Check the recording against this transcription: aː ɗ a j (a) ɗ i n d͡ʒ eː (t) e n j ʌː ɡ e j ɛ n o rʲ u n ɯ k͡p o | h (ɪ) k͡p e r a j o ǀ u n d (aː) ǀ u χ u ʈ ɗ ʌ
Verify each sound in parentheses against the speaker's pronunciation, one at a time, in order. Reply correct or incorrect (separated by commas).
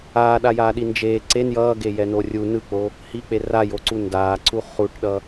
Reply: incorrect, incorrect, incorrect, correct